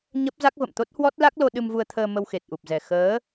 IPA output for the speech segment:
ɲ ə˦˥ p̚ z a˦˥ k̚ v ə̰˧˨ m t̪ o˦˥ t̚ h w ɔ˦˥ t̚ l a˦˥ k̚ l o˧ ɗ ɨ˧ m v u˧ ə̯ t̪ʰ əː˧ m ə˧ w x e˨˩ t̚ ʔ u˨˩ p̚ z ɛ˨˩ x əː˨˦

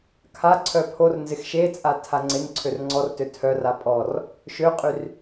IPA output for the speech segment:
kʰ a ǀʰ œ pʰ o r n z ɪ x ʃ e t͡sʼ a tʰ a ŋ͡ǀ ɪ n ǀʰ ø r ŋ͡ǀ ɔ r t ø tʰ œ r a pʼ ɔ r | ʃ ø qʼ y r

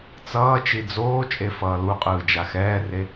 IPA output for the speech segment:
t͡s ʌː t͡ʃ i d͡z oː t͡ʃʼ e f ʌː l u qʼ ɯː d͡ʒ a x ɛː r e

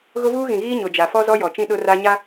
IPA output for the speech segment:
ɣ ʊ˦ v uː˦ ɣ ĩ˨ ɣ iː˦ ɲ ʊ˨ d͡ʒ a˨ f ɔ˦ z ɔ˦ j ɔ˨ t͡ʃ ĩ˦ ɗ ʊ˦ r a˦ ɲ a˦

